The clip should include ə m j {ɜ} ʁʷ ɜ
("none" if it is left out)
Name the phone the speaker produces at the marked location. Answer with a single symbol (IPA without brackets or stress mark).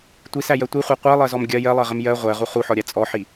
ɜ